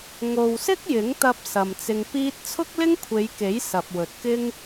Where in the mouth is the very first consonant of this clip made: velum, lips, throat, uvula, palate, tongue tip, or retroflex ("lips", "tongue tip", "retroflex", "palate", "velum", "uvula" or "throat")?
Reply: velum